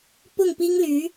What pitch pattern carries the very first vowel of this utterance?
falling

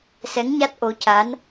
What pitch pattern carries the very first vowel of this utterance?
rising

